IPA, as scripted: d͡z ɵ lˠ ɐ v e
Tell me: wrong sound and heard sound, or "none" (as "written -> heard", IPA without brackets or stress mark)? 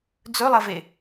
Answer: none